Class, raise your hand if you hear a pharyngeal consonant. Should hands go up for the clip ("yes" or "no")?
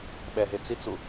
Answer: no